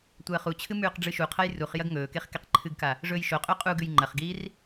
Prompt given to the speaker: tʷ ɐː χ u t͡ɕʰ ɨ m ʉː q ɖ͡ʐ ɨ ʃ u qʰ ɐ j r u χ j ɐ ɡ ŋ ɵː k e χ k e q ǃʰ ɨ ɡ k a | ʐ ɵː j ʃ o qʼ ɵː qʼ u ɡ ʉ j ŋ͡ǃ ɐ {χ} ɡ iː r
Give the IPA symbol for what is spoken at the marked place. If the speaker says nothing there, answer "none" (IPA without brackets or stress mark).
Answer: χ